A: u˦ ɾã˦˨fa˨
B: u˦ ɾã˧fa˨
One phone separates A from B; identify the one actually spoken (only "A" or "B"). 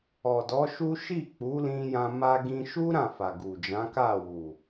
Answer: A